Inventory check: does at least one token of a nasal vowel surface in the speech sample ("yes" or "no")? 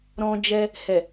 yes